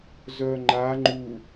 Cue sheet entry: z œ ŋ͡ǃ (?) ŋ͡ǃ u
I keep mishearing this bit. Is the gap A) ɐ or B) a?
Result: B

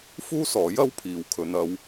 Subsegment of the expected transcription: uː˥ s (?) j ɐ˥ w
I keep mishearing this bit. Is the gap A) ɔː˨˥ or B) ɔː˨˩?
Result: A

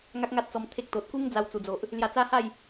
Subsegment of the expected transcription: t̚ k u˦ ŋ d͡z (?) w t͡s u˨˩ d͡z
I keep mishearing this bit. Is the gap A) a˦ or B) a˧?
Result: B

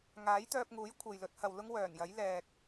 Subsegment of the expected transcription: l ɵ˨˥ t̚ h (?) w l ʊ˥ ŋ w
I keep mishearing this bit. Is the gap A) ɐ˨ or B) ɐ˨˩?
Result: A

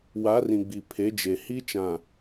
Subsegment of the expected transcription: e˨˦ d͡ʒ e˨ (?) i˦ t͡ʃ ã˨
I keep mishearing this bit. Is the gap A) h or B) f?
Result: A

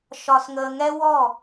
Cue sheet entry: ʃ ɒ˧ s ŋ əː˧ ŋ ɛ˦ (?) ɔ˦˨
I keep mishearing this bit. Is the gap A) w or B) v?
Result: A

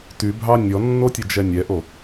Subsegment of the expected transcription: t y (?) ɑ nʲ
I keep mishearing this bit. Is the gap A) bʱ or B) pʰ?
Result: A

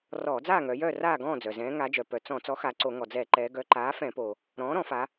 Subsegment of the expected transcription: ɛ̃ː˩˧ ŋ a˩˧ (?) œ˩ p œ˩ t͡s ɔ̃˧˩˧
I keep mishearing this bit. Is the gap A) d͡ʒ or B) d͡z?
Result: A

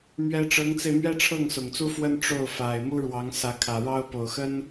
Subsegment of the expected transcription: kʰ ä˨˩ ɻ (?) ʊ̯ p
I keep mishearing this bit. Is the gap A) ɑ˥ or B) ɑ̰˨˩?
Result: A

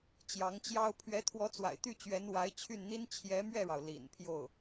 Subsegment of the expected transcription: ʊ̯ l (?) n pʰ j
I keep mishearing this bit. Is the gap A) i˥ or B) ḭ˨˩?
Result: B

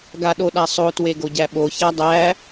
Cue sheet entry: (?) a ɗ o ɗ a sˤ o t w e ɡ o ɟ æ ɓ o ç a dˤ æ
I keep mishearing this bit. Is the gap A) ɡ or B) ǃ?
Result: A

